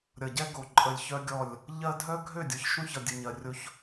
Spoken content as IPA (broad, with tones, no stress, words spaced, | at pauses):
ɾʲʌ˨ɟɛ˦ ɡo˨ǃʼə˨lʲ çœ˦ɡʲɔ˦˨lʲ | ʎɜ˦ dʱœ˦ɡʱø˦˨dʲɔ˨ç ʃũ˦çʌ˨ dʲə˨ɲɜ˨rʲo˦ç